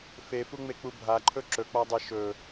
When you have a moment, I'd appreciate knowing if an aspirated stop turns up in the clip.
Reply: yes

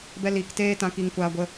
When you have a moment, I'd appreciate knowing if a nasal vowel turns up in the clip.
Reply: yes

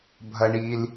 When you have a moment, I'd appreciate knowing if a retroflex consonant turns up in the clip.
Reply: yes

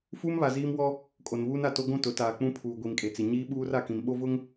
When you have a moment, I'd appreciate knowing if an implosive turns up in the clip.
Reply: yes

